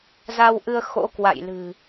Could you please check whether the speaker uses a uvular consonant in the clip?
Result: no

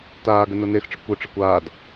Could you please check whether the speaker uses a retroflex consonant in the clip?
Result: yes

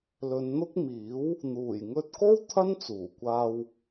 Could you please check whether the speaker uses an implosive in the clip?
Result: no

